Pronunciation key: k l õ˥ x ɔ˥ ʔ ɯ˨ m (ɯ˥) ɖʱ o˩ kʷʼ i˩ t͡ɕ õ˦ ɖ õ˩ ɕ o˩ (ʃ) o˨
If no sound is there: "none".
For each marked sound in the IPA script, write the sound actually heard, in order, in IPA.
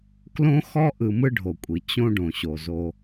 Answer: ɯ˦, z

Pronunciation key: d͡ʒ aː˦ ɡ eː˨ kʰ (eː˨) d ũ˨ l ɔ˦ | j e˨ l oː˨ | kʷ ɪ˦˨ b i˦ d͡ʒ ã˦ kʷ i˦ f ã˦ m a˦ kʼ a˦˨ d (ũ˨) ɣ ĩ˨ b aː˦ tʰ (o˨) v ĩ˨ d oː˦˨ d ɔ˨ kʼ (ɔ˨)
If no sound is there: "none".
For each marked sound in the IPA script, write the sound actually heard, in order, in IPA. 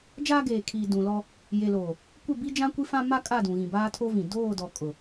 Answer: iː˨, ũ˨, o˦, ʊ˨

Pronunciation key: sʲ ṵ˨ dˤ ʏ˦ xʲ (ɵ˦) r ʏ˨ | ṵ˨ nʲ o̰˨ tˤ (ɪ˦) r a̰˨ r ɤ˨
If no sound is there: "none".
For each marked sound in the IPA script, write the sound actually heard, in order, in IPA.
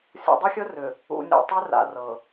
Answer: ɵ˦, ʏ˦

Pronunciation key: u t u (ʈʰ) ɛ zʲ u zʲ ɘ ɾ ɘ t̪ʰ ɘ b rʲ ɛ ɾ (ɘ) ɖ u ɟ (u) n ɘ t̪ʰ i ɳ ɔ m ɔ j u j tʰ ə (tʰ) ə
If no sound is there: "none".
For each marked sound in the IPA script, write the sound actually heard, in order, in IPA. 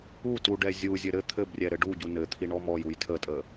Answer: ɖ, ɘ, u, tʼ

